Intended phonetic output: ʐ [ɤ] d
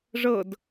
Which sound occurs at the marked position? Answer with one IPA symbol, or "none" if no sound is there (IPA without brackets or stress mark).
ɤ